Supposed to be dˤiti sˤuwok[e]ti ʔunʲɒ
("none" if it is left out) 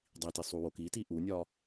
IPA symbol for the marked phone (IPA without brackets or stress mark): i